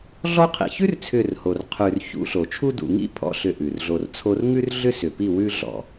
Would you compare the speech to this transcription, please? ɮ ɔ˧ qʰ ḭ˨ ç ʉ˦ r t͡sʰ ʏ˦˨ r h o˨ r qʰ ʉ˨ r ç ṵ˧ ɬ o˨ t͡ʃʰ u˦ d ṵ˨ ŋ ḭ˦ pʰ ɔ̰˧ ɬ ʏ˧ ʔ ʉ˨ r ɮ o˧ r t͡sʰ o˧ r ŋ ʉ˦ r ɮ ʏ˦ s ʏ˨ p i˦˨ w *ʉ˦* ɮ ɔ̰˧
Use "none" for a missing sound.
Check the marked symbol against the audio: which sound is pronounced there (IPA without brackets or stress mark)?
ʉ˦